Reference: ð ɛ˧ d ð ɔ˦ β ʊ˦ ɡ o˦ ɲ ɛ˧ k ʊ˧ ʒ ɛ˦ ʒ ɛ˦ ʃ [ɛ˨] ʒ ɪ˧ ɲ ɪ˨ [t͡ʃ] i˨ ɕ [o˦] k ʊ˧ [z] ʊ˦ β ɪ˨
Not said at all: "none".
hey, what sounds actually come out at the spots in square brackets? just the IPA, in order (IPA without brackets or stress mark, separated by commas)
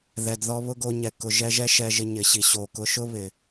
ɛ˧, ɕ, o˨, ʃ